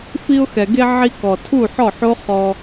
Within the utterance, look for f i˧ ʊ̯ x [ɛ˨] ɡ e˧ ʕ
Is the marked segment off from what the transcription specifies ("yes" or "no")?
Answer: no